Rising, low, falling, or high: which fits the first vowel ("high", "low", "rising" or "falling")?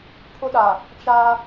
high